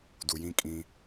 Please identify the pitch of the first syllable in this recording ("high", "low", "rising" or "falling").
low